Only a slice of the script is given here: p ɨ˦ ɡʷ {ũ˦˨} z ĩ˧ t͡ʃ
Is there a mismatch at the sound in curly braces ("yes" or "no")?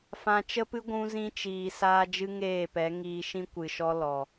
yes